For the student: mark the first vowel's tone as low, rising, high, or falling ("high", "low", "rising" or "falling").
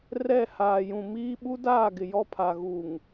falling